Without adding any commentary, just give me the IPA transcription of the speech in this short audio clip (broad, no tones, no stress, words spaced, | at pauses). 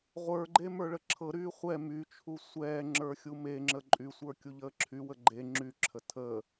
ʁʷə˞ɡ͡ǃe mə˞ɭəǁʰɤɾyː χʷɛ myt͡ʃʰu sʷɛː ŋ͡ǁə˞xʲumeŋ͡ǁə ǃʼysʷə˞ kʲuʎəːǁʰywə ɡ͡ǃe ŋ͡ǁyǁʰə tʰəː